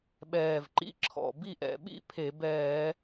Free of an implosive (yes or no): no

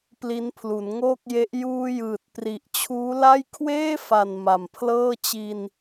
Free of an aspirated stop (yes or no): no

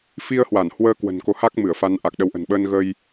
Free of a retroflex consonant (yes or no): yes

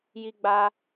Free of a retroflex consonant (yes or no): yes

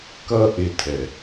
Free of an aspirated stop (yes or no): no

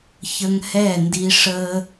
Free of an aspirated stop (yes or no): yes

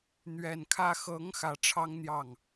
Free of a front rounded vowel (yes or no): yes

